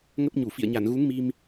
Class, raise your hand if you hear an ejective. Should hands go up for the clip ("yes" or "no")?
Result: no